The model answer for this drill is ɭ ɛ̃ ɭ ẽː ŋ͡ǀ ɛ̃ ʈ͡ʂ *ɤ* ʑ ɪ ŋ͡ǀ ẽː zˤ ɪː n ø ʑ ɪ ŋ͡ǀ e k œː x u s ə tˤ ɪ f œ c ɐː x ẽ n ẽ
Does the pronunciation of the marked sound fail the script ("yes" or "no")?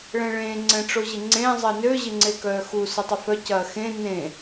yes